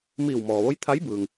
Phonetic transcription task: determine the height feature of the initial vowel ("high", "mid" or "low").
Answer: high